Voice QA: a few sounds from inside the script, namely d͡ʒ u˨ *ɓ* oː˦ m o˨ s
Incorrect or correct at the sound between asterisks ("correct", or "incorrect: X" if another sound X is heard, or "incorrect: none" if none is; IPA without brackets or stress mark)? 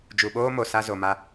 correct